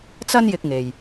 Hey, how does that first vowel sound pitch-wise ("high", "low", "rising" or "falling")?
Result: high